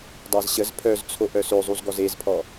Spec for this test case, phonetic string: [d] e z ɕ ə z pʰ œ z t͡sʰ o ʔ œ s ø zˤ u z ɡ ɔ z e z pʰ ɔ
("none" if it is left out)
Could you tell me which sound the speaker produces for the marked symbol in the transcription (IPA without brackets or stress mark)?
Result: dˤ